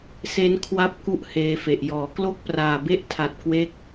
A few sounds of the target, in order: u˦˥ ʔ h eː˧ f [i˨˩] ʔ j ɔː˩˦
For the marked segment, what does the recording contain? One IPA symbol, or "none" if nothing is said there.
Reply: e˨˩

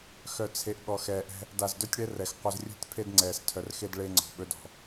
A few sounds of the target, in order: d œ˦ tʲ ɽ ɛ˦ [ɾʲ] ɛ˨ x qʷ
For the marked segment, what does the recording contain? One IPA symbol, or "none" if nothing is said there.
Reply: r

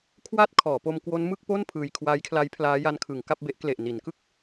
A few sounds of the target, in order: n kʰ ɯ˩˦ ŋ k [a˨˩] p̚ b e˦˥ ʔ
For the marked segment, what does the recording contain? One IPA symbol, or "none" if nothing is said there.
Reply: a˥˩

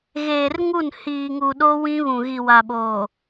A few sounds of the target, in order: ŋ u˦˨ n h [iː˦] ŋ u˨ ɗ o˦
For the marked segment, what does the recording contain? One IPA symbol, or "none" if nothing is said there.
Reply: iː˨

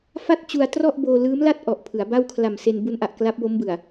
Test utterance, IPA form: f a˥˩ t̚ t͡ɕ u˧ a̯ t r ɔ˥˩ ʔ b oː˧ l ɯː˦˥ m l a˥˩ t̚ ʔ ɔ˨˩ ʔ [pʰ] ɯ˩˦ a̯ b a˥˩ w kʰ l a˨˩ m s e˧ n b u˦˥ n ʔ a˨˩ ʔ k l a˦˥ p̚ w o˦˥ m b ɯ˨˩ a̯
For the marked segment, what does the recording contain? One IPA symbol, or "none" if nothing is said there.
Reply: pʰ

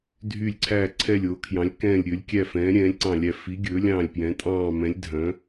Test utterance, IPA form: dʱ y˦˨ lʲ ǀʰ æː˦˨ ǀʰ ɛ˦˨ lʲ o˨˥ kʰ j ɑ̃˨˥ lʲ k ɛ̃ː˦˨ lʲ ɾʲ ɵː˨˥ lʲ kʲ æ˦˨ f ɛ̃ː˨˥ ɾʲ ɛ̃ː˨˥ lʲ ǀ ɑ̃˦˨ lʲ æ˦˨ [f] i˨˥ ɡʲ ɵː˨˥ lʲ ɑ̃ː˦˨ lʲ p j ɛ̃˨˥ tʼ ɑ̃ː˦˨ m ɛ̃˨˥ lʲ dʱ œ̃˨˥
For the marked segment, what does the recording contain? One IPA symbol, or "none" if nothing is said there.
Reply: f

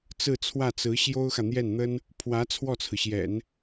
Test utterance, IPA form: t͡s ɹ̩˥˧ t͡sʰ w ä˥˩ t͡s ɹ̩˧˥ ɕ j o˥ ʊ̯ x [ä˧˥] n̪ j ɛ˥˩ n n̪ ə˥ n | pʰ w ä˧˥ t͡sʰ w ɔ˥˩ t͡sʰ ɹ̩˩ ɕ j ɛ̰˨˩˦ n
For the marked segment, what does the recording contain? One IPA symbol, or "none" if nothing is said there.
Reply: ä˨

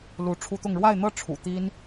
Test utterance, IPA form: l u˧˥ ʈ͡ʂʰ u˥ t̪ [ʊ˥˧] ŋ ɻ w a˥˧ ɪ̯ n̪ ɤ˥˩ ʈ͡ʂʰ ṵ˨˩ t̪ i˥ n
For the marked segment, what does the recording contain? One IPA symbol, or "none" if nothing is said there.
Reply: ʊ˥˧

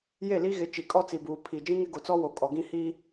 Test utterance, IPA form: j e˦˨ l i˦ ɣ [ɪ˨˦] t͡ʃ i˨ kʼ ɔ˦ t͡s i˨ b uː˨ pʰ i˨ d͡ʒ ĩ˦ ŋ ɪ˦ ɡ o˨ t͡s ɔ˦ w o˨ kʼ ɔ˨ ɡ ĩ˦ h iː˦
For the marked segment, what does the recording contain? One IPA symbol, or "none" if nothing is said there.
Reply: ɪ˨˦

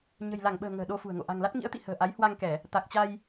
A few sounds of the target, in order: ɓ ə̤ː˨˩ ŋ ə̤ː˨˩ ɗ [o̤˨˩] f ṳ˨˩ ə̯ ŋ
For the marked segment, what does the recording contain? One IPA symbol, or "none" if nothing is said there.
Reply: o˧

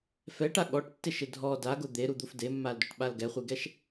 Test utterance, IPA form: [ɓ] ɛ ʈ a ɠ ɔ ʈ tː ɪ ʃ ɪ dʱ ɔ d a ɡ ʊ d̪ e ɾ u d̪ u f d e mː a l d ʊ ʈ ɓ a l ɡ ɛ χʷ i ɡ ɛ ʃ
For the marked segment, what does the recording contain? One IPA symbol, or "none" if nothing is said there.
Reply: f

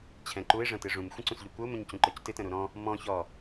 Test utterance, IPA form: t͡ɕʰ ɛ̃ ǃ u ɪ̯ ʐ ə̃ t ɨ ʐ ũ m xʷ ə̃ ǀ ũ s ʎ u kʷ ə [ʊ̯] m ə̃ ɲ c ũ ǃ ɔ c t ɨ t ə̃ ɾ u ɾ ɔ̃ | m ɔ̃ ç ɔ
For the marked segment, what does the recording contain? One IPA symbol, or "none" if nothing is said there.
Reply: ʊ̯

